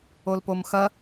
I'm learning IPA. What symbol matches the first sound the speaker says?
o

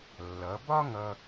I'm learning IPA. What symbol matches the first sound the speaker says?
lː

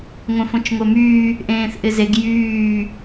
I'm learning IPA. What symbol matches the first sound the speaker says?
ŋʷ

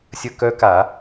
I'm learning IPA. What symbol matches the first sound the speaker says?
sʲ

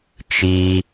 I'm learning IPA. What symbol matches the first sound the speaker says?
t͡ʃ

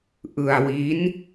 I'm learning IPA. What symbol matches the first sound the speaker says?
ʔ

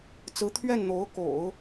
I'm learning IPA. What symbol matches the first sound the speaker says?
t͡s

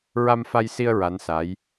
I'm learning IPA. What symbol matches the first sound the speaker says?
ɹ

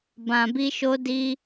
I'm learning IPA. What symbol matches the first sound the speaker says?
b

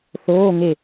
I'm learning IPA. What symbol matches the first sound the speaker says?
θ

